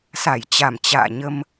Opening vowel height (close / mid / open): open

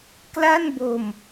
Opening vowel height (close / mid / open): open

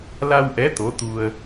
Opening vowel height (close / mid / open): open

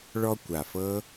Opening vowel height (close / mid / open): mid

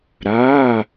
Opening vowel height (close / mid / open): open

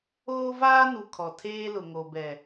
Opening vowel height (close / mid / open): mid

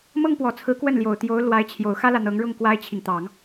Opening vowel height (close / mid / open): mid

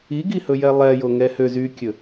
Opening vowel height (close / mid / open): close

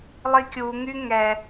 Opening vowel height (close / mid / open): close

